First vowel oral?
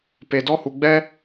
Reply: yes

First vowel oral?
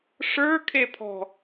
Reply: yes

